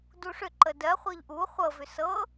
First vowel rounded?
yes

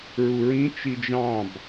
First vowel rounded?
yes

